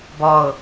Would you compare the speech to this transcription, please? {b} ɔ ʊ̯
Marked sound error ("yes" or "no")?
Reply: no